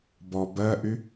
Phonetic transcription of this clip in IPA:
b ɔ b ɜ ʔ y

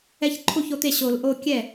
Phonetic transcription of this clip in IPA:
ɛ˦ ç ǃʰ u˥˩ ç o˥˩ t̪ e˥˩ ɕ o˨˩˦ l ʔ o˦ kʲ ɛ˥˩

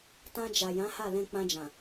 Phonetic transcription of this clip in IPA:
t ã˧ d͡ʒ a˨ j ã˨˦ h a˦˨ l ɛ̃˧ k͡p ã˧ d͡ʒ ã˨

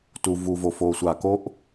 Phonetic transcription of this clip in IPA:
t u˨ v u˨ v o˨ f oː˨ sʷ aː˨ k o˥ ʔ

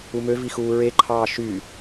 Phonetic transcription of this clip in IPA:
u m ø v i x uː ɹ e ǃʰ ɑː ʃ y

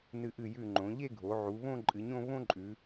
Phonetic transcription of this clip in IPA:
n ɨ˧˩ ʔ ɨ˧˩ j ʉ˧˩ ŋ͡ǃ õ˩˧ ʎ e˥˧ ɡʱ o˩˧ ʕ u˩˧ β õ˥˧ ǃʼ ɨ˩˧ ɲ õ˥˧ β õ˥ ǃʼ ʉ˩˧

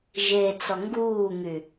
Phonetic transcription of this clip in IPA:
ʒ e t͡s ɔ ŋ ɡ uː ŋ y

